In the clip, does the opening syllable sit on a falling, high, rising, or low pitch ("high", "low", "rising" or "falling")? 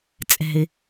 low